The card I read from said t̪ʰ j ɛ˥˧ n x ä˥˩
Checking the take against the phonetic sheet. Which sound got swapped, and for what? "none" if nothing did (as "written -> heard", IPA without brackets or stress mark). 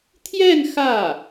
none